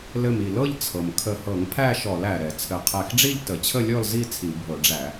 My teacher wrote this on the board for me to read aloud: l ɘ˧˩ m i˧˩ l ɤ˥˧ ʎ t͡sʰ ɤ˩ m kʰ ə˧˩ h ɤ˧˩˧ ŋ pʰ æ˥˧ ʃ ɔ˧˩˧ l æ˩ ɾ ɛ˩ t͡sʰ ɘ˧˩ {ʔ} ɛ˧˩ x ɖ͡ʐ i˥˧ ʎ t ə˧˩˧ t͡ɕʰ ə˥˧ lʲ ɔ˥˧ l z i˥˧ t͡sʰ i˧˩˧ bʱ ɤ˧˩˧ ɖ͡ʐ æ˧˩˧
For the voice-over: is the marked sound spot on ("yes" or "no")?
no